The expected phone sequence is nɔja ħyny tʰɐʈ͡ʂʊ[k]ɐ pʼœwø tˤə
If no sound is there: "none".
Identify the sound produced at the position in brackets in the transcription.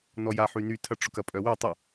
k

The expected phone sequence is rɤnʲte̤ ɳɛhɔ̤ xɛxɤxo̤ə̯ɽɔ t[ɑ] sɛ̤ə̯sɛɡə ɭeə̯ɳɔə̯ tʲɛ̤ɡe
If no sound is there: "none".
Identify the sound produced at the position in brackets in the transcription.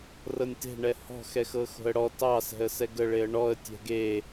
ɑ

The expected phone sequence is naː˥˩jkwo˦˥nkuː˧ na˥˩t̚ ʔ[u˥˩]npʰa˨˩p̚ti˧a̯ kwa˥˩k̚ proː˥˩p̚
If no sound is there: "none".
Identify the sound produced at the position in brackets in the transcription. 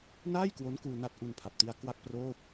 u˧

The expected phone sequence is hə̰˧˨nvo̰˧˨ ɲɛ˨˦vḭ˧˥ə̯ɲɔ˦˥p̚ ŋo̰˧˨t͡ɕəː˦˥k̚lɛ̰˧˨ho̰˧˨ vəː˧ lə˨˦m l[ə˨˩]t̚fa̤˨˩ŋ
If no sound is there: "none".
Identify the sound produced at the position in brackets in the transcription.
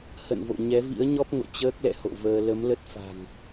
ə˦˥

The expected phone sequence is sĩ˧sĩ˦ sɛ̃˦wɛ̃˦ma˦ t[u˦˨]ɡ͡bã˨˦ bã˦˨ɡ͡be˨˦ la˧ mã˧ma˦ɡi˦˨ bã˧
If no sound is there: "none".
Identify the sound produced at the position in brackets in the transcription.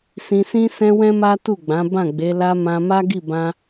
u˦˨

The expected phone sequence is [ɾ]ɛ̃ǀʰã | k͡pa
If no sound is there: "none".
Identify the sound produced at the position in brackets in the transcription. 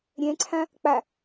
ɾʲ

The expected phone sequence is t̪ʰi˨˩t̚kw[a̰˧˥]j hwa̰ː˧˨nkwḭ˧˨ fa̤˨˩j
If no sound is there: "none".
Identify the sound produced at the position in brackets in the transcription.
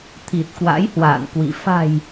a̰˧˥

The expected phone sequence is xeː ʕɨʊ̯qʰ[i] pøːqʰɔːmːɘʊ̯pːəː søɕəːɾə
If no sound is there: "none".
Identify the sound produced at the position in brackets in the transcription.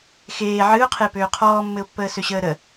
e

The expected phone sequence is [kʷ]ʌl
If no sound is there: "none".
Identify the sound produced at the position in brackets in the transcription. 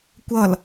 kʷ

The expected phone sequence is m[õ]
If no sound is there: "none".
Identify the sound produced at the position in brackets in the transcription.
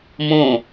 õ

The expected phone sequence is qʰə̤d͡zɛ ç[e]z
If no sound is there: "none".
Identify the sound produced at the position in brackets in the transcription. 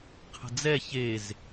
e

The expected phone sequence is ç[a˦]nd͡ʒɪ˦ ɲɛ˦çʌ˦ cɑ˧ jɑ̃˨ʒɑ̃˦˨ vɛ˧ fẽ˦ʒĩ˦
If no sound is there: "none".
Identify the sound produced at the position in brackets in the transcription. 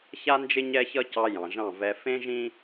a˦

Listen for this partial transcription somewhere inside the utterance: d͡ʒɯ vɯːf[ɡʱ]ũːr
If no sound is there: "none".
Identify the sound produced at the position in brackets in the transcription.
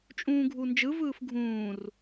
ɡʱ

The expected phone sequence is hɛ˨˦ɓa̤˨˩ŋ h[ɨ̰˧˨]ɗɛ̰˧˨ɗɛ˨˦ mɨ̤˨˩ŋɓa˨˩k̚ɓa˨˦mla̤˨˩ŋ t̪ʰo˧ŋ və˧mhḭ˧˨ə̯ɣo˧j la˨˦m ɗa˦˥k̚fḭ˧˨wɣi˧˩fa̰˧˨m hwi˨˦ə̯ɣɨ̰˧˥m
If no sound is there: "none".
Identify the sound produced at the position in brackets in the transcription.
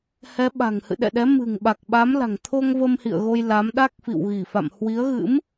ɨ̰˧˨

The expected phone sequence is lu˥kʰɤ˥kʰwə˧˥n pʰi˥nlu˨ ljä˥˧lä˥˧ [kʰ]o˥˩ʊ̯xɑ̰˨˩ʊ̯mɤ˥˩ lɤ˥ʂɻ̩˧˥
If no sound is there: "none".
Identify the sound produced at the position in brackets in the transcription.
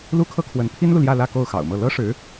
k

